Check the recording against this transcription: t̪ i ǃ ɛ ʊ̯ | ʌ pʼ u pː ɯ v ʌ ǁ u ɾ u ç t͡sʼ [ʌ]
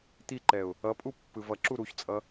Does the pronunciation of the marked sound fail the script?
no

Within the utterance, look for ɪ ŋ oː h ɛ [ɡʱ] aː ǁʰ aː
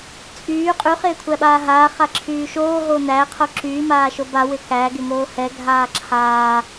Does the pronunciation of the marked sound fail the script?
no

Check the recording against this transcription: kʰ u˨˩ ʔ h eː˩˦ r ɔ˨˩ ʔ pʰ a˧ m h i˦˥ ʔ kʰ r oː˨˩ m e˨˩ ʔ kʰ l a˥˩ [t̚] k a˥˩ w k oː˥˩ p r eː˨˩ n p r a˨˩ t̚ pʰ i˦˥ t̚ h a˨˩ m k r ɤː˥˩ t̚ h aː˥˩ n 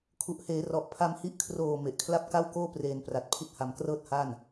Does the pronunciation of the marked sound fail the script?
yes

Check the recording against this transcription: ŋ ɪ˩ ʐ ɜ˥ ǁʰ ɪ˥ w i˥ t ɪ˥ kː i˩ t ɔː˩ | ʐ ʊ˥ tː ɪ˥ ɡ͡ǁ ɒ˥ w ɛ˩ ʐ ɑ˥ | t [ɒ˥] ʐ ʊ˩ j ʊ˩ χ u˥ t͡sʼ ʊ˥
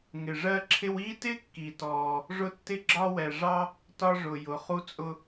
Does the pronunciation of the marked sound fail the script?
no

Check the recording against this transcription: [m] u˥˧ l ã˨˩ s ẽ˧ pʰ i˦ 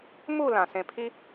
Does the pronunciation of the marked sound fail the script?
no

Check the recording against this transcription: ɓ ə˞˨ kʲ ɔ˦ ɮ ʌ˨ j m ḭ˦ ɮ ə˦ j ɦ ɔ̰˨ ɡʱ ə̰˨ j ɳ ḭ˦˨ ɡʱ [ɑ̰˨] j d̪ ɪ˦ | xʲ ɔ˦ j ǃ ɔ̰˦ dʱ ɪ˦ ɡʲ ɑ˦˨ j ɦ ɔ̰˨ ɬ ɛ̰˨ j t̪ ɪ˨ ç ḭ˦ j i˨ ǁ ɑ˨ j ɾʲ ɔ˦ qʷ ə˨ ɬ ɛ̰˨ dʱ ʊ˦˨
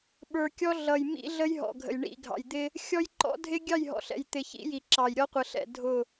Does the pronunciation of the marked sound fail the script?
no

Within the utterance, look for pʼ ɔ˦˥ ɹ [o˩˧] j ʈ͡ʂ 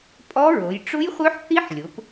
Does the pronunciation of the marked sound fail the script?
no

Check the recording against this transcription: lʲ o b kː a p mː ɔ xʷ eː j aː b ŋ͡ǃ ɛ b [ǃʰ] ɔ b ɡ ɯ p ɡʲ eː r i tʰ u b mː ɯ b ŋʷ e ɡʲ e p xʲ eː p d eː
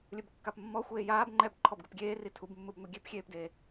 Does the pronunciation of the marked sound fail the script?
no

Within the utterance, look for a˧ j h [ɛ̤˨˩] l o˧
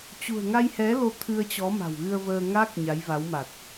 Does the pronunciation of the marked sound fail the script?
yes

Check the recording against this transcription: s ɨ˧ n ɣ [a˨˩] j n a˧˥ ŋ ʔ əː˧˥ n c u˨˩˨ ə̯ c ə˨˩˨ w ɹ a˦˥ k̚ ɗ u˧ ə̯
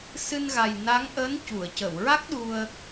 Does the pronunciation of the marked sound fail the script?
no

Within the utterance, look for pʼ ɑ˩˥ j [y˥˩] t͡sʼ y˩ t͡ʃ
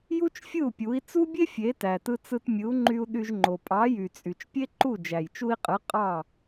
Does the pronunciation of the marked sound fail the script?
yes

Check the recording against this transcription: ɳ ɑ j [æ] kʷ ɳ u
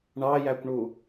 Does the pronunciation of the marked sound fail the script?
no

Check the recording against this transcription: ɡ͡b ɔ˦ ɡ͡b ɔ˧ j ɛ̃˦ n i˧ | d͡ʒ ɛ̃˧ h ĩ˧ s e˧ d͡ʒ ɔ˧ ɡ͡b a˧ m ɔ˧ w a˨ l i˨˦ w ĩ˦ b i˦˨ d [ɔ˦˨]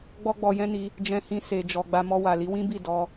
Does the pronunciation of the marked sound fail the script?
yes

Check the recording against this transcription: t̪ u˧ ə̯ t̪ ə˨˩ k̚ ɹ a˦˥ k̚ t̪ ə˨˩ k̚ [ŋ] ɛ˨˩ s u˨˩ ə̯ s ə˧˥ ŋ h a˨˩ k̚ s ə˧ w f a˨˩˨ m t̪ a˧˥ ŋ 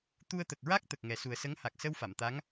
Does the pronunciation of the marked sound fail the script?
no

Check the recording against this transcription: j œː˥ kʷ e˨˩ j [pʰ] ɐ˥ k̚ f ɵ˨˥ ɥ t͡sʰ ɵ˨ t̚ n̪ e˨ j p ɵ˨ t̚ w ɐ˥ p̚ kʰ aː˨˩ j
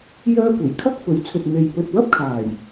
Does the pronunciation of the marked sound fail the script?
yes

